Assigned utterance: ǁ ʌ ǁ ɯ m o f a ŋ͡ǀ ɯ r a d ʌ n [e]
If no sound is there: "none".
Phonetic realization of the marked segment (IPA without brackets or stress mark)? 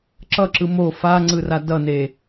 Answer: e